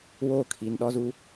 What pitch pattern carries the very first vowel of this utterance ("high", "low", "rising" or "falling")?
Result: falling